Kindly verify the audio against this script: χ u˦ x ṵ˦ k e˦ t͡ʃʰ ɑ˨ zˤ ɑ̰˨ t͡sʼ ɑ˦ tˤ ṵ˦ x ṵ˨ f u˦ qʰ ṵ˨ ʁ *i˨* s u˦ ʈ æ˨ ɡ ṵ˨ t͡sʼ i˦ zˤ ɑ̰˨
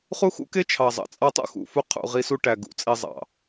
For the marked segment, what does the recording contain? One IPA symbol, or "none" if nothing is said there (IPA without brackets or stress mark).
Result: i˦